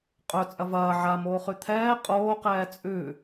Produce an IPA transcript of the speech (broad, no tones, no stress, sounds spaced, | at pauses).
qʼ ɵ t͡sʼ ɐ v ɐː ʕ a m oː χ ʉ t̪ʰ ɛː qʼ oː q ɛː t͡sʼ ʉ